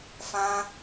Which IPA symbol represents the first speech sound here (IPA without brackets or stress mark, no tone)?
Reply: f